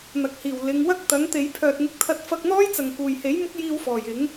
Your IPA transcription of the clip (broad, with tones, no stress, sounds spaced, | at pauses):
n̪ ɐ˨ k̚ h iː˨˩ w l ɪ˨˧ ŋ w ɐ˥ k̚ t̪ ɐ˨˥ ŋ t̪ e˨˧ j pʰ œː˨ t̚ ŋ ɪ˧ k̚ t̪ʰ ɐ˧ t̚ f ɐ˧ k̚ n̪ ɔː˥ j t͡s ɐ˨ ŋ k uː˨˩ j h e˨˥ j m ʊ˥ k̚ j iː˧ w f ɔː˨˩ j ɪ˨˥ ŋ